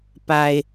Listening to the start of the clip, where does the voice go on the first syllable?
low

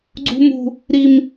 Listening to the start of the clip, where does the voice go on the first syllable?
high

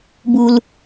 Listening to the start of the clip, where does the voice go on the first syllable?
low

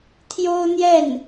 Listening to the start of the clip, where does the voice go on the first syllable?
high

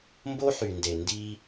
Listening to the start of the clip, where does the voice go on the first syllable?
high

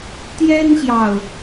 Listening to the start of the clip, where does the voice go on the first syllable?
high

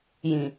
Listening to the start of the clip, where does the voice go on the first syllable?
low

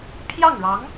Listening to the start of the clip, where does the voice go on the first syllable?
falling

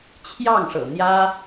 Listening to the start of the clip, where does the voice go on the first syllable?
falling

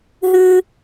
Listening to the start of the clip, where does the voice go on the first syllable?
high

